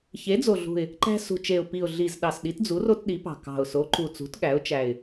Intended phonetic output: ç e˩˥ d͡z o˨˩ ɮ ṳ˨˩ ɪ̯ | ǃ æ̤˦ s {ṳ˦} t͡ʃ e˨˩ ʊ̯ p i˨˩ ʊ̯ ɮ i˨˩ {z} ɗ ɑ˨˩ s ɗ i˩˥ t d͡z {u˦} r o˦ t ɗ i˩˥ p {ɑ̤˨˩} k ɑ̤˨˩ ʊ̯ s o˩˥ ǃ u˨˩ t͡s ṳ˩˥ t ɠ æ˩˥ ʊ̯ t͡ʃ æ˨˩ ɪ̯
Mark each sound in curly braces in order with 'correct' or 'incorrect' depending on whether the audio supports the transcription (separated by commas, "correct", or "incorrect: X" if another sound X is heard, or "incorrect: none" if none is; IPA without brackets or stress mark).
incorrect: ṳ˨˩, correct, incorrect: u˩˥, correct